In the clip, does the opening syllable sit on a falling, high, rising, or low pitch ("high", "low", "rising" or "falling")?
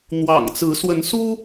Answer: low